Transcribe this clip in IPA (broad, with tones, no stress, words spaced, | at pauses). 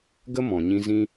ɡə˦ mɔ̃˨ɲĩ˧ zĩ˧